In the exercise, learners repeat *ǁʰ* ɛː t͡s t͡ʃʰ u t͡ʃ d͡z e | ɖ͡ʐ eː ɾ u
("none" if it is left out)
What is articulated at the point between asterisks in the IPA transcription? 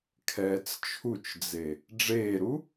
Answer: kʰ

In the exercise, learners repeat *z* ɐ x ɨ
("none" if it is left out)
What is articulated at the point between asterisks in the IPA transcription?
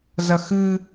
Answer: z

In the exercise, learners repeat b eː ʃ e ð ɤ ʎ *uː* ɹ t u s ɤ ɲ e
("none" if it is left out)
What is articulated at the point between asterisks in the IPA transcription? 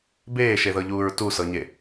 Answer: uː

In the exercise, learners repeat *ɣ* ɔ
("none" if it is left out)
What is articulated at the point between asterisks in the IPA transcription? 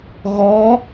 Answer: ɣ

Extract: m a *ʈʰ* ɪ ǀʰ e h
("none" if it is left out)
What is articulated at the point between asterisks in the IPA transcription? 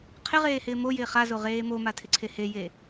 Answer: tʰ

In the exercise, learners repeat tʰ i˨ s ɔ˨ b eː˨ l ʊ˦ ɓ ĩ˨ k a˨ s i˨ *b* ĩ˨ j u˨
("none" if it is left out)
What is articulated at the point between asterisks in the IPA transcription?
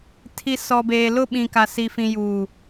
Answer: f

